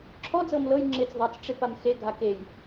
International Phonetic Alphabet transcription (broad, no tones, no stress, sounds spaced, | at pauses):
ǁʰ ɔ d͡z ɤ m l ɤ j ŋ͡ǁ ɪ t͡s ðˤ a t͡s ʈ͡ʂ e p a m x e ɡʱ a k e j